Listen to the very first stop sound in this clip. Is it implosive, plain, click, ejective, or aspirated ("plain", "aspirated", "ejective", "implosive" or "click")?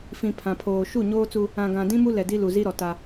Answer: aspirated